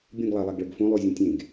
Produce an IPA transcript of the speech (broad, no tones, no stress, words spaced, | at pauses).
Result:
bʲũɡlˠalˠaɡɭəɡ fũlˠuzʲũ tʲẽɡ